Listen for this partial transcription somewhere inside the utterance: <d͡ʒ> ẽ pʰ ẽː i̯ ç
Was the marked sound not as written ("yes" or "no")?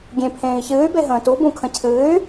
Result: yes